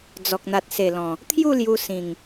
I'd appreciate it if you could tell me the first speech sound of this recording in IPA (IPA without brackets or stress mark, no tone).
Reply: d͡z